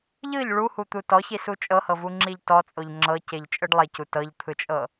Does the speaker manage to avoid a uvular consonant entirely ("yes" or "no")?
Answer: yes